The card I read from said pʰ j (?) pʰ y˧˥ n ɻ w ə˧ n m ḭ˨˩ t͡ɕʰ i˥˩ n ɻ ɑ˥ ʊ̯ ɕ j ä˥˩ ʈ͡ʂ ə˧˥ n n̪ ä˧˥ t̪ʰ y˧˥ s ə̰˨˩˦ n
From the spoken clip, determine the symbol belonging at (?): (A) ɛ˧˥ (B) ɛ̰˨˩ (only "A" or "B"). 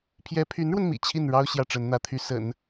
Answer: A